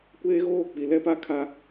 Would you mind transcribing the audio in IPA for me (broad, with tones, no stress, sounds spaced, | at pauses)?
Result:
kʷ eː˦ ɣ oː˦˨ k͡p i˨ l ɛ˦ p a˦ kʰ a˦